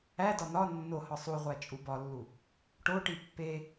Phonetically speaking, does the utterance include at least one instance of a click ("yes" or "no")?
no